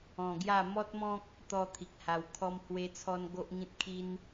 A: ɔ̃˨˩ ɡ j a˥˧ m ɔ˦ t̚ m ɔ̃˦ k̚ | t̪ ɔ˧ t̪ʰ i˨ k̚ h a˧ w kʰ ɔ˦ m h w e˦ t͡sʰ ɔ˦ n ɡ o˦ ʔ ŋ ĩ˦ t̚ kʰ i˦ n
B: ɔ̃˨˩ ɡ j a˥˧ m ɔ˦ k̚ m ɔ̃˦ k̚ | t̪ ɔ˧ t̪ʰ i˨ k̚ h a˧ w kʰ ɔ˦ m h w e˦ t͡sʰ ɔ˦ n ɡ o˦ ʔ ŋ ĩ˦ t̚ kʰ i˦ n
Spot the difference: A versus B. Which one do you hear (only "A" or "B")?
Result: A